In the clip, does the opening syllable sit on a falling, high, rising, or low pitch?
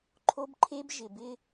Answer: high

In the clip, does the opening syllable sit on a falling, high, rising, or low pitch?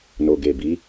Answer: low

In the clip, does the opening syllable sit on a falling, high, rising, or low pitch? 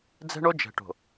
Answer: high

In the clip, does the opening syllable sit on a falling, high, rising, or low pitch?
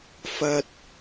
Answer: high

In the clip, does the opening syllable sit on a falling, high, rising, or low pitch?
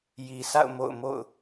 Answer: low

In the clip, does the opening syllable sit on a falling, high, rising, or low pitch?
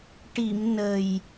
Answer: low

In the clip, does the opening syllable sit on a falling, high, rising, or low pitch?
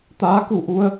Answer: rising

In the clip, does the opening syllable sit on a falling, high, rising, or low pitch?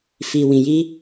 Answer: low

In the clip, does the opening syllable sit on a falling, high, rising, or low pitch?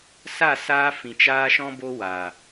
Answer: falling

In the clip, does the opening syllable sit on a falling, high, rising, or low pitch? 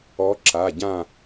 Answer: rising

